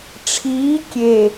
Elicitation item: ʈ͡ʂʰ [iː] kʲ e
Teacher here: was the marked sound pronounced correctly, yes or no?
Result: yes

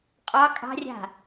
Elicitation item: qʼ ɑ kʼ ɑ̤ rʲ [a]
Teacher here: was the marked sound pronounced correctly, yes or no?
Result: no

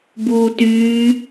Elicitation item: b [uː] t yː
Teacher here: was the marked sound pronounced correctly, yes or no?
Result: yes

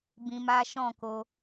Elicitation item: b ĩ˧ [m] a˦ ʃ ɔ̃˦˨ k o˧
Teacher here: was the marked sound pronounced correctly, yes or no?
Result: yes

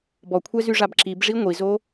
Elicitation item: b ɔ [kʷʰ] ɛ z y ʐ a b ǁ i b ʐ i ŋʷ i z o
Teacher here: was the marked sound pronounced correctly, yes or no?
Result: yes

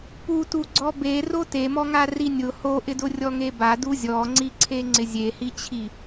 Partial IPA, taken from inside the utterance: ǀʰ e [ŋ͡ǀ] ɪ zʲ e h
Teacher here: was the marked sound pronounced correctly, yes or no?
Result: yes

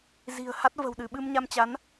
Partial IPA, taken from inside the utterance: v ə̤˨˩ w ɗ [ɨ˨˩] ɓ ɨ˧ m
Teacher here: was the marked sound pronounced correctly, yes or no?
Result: no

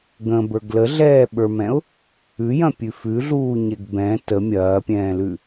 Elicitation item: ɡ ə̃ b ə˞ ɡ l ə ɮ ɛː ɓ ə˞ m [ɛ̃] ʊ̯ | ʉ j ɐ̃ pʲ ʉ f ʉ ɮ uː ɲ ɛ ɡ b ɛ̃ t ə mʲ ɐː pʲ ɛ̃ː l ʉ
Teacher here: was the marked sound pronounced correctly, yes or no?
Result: yes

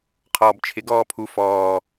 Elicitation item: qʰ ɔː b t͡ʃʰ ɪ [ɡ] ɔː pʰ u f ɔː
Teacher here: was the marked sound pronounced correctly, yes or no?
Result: yes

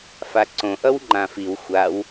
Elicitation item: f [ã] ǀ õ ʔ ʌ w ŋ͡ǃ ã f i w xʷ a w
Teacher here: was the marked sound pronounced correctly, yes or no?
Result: no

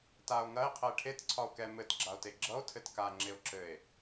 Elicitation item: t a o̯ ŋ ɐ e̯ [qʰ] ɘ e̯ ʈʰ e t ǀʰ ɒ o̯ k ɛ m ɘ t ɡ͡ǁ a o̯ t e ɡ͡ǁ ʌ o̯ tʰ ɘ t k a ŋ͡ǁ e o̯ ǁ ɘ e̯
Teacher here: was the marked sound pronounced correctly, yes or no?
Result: yes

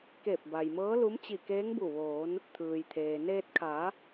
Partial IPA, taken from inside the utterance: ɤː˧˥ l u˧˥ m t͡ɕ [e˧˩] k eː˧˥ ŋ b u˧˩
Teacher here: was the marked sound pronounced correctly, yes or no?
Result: no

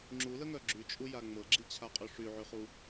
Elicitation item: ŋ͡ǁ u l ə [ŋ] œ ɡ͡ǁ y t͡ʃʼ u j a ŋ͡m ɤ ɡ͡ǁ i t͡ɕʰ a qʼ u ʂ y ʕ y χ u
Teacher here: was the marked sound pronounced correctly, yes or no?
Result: yes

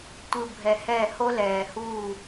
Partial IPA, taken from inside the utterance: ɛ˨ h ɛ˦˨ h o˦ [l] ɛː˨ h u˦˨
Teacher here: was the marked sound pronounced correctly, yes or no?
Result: yes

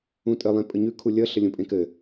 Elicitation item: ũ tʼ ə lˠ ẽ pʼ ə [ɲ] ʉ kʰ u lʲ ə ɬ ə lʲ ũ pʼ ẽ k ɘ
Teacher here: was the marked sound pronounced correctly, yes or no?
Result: yes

